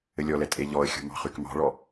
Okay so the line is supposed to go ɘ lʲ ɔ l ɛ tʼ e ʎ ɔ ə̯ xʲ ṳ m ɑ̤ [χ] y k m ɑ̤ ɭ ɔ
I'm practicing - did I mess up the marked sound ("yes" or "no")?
no